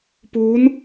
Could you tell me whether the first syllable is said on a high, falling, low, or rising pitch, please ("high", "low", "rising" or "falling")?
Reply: rising